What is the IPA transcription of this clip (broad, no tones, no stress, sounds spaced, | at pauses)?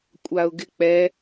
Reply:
kʷʼ a ʊ̯ ɡ ɪ k͡p ɛ